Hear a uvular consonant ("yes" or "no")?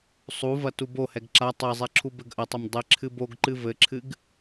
no